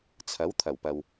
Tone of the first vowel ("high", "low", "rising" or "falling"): rising